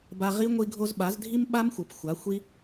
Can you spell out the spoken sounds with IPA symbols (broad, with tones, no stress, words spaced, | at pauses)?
ba˧ʁi˦ ŋʷi˧ɡʱo˧zɓa˨˦z dʱi˦m ɓa˦mxʷɘ˨p xʷa˨˦ xʷi˦